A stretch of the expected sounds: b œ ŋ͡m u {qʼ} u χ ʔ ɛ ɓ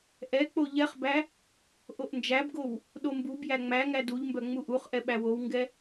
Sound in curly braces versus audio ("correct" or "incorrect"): incorrect